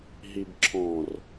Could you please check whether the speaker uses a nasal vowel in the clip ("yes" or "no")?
yes